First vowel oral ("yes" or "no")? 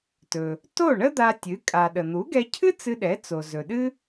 yes